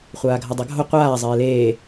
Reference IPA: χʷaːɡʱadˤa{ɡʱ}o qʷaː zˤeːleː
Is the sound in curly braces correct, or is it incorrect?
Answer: correct